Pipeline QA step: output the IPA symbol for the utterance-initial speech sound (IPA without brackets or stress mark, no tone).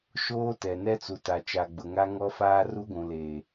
ʃ